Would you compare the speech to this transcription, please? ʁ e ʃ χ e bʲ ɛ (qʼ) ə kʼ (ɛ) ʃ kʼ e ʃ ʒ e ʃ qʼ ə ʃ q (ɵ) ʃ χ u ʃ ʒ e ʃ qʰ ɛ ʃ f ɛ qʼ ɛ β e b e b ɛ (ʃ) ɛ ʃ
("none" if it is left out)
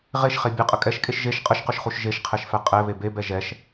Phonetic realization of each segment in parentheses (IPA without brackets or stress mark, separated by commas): qʼ, ɛ, ɵ, ʒ